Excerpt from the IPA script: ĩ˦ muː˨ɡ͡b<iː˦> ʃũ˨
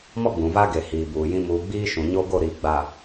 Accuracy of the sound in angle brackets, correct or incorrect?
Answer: correct